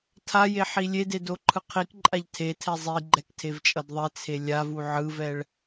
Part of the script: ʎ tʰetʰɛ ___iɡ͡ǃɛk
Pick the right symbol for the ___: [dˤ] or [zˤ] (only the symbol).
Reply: zˤ